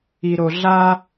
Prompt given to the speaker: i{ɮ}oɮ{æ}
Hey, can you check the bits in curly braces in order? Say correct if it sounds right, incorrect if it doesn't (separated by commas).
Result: incorrect, incorrect